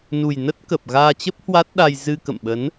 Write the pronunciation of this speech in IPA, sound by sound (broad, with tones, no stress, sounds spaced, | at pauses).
n u˨˩ j n ə˦˥ t̚ k ə˨˩ p̚ ɣ aː˧ t͡ɕ ə˦˥ p̚ h w a˦˥ t̚ ɗ a˧ j z ɨ˧ k ə̰˧˨ m ɓ ə˨˦ n